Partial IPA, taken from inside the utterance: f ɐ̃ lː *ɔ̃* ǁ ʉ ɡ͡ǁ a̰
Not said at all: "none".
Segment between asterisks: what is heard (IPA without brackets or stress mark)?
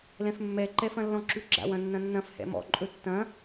ɔ̃